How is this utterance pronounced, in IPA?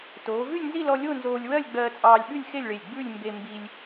t oː˩˧ v ʉ˥˧ lʲ n z i˥˧ l ɔ˧ lʲ o˥˧ n z oː˧ lʲ w ɜ˥˧ lʲ ɡ͡b ɜː˧ t͡sʼ ɑː˧ lʲ ɓ ʉ˥˧ lʲ x e˥˧ lʲ ɭ e˧˩ lʲ ɡ͡b ʉ˥˧ lʲ m b e˧ m b i˧ lʲ

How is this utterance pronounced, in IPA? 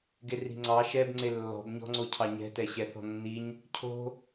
ɡ e r i̤ ŋ͡ǀ ɑ ʃ ɛ b ŋ͡ǀ e lː ɔ̤ b ɲ ɔ̤ ŋ͡ǀ o cʰ ɑ ɲ ɛ̤ t ɛ ɕ ɛ θ ɔ̤ nː i ɲ | cʰ o̤

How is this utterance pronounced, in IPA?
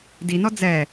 d i n ɔ d͡z ɛ

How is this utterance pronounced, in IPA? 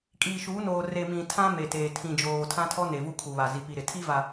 kʼ iː˨ ʃ uː˨˦ n oː˨ r e˨ m ĩ˨ tʰ ã˦ m e˨ t eː˨ tʰ ĩ˨ d͡ʒ oː˨ tʰ ã˦ tʰ ɔ˦ n e˨ v u˦ kʰ u˨ β a˨ z i˨ p i˨ ɾ ɪ˨ tʰ i˦ v a˨

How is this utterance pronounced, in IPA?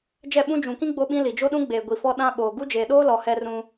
d͡ʒ ɛ˦˨ ɓ ũ˦ d͡ʒ ũ˨ k ĩ˦ ɡ͡b o˦ ɓ ĩ˦ l i˨ d͡ʒ o˦ ɗ ũ˦ ɡ͡b eː˨ ɡʷ i˨ f ɔ˦ ɗ ã˦ ɓ oː˨ ɡ u˦ d͡ʒ eː˨ ɗ oː˦ l ɔ˨ h ɛ˦ r ũ˦

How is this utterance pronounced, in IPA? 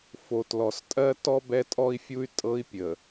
f o˨ t l ɔ˨ s tʼ ɜ˦ t ɔ˦ b ɛ˦ tʼ ɔ˦ i̯ fʲ u˦ y̯ tʼ ɤ˦ i̯ pʲ ə˨

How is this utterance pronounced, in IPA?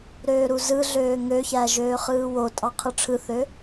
ɾ øː ɾ u z ɯ ɮ øː ŋ ø ç æ ʒ øː χ ɯː w o tʼ ɑ qʰ ɯ ʈ͡ʂʰ ɯ θ ø

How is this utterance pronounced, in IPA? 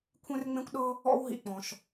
kʷʰ ẽ˥ r ŋ͡m ẽ˥ kʷ ɗ ɤ˥ | ɔ̰˥ w ɦ ḭ˩ k͡p ɔ̃˩ ʃ

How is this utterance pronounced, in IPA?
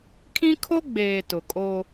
kʰ ĩ˦ kʰ o˦ ɡ͡b eː˨ t ʊ˨ kʼ o˦

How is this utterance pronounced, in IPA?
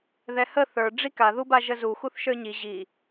ð ɛ h ə θ ə˞ ɖ͡ʐ i k a ð u b a ʒ ə z u x u θ ʃ ə˞ ɲ i ʑ i

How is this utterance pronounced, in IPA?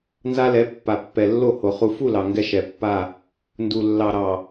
n z a˦ l ɛ˨˦ pː a˨ pː ɛ˨ lː o˦˨ h o˨ χ u˨ f u˦˨ l ɑ˨ ŋ ɡ ɛ˦ ʃ ɛ˨ pː a˦˨ | n d u˨ lː ɑ˨ ɾ ɑ˨

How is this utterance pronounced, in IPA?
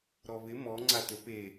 ɾ ɔ β ɪ m ɔ ŋ͡ǀ a t ɵ p e

